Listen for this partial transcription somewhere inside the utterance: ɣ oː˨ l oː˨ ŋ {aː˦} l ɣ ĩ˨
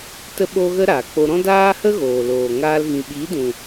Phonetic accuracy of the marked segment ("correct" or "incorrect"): incorrect